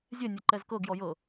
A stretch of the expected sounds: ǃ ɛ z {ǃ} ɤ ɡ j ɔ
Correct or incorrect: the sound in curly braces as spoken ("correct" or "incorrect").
incorrect